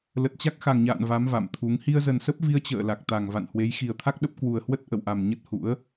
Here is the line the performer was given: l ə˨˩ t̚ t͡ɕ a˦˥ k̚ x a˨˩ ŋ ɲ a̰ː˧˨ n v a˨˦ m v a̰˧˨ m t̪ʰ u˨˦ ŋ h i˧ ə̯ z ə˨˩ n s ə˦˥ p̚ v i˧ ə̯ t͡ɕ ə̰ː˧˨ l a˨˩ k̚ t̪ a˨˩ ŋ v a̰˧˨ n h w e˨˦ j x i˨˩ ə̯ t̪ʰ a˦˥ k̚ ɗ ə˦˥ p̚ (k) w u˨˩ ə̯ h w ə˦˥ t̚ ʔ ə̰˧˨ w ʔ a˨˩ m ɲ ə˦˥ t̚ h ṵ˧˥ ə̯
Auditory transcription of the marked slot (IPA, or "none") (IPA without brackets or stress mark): k